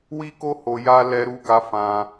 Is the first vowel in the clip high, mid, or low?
high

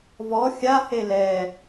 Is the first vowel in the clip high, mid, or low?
mid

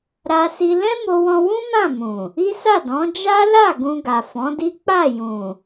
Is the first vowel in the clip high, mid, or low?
low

